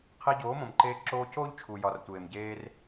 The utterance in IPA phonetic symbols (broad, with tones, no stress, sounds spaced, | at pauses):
qʰ i˧ ɟ oː˨˦ m õ˨ m ǃ eː˧ ǁ oː˧ c oː˦ ʎ t͡ʃʰ u˨ j ɒ˨ r tʷ eː˨ m ɟ eː˧ r